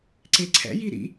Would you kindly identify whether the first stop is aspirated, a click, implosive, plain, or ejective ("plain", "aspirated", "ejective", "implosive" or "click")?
click